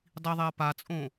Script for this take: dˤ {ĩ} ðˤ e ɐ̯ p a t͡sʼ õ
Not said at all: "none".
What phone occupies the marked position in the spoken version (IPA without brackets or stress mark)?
i